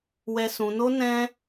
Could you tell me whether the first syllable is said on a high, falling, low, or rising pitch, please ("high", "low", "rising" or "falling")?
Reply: high